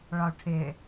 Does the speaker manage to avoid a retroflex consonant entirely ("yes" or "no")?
no